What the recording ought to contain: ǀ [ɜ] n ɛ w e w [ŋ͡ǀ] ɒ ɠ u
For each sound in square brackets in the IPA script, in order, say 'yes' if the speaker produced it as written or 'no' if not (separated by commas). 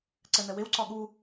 no, no